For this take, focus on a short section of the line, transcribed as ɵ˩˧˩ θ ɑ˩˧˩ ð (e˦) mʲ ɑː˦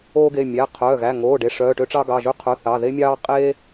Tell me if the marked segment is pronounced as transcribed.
yes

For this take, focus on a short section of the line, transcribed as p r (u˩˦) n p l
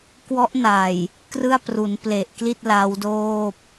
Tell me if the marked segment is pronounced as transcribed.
yes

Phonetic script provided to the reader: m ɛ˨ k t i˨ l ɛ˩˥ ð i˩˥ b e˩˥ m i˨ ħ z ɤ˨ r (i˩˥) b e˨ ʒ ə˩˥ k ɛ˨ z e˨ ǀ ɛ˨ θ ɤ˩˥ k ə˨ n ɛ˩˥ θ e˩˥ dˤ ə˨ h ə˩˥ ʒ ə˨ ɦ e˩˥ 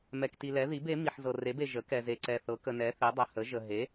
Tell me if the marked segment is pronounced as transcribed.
no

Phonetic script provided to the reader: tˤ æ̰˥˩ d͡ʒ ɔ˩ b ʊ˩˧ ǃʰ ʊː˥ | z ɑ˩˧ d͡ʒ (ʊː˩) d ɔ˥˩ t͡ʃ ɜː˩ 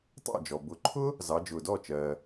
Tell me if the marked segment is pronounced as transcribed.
yes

